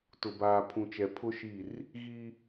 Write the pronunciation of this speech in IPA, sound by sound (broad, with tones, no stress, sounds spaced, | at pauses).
t ʊ˨ b aː˨ pʰ ũ˨ t͡ʃ ɛ˨ pʰ ʊ˦ ʃ i˦˨ r | ɣ i˦